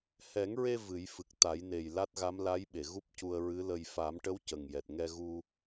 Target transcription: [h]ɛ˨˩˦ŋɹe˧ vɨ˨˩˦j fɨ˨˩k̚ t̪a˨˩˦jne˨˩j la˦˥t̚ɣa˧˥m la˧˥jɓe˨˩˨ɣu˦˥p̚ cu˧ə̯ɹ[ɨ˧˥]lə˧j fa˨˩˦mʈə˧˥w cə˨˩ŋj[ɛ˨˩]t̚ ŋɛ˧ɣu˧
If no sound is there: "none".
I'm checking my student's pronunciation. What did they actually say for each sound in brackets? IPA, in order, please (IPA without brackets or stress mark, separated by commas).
h, ɨ˧˥, ɛ˨˩